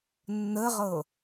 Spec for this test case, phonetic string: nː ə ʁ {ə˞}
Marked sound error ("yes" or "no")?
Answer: yes